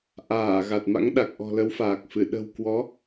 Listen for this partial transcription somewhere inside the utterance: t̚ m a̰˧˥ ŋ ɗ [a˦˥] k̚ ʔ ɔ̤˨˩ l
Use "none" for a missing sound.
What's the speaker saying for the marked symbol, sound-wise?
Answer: a˨˩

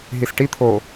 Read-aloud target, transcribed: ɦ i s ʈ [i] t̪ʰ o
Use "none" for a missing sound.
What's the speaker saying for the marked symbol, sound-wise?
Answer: i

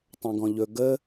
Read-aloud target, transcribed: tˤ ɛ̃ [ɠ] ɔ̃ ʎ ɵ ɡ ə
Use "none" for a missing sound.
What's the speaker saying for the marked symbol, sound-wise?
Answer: ɡ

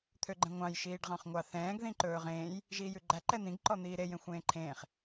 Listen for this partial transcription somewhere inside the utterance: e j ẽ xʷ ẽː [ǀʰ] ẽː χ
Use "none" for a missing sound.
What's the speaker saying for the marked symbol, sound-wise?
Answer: ǃʰ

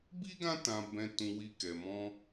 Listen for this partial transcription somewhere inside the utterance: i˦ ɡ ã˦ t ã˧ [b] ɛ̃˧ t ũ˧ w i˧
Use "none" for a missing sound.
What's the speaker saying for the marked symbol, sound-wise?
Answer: b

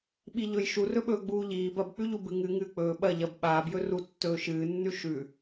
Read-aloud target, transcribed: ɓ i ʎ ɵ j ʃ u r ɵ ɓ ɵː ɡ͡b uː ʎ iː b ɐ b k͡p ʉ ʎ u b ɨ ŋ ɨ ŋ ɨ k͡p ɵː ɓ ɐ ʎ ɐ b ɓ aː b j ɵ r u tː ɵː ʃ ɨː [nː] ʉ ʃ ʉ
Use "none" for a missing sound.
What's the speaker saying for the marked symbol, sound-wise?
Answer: nː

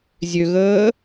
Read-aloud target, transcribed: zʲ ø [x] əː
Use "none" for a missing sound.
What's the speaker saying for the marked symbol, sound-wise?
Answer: ɣ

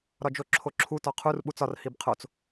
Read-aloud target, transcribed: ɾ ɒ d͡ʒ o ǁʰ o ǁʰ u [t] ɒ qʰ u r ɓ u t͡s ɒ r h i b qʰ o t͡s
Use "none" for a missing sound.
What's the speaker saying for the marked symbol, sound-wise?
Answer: t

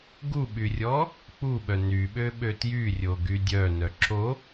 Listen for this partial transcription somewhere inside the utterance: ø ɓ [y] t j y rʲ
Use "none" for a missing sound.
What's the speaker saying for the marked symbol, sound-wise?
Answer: ø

